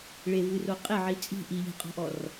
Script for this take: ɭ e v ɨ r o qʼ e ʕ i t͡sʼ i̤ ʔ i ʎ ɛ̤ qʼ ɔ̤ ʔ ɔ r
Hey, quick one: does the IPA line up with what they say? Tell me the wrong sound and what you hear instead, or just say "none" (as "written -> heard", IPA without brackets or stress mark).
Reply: none